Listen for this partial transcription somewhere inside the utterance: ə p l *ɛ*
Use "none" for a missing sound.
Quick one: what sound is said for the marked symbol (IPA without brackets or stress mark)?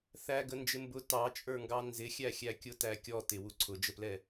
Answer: ɛ